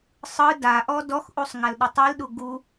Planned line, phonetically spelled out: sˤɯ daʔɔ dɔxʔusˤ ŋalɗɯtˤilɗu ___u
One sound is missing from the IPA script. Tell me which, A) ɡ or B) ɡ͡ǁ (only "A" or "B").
A